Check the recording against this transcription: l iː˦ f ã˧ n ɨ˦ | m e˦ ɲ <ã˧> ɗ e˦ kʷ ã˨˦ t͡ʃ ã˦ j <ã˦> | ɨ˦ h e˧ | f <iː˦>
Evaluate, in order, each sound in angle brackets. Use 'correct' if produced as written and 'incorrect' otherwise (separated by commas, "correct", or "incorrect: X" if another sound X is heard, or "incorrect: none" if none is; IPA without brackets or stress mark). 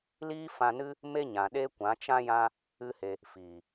incorrect: ã˨, correct, incorrect: iː˨